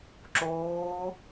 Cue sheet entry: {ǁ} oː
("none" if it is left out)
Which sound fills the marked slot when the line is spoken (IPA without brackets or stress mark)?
ǁ